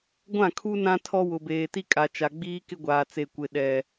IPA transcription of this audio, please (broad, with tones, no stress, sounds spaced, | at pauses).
ɡʷ ã˦˨ kʰ u˦ n ã˦ tʰ ɔ˦ w ʊ˨ b eː˨ t i˦ kʼ a˨ t͡ʃ a˨ ɡ͡b iː˦ k ɪ˦ ɡʷ aː˨ t͡s e˨ kʷ ɪ˨ ɗ ɛ˨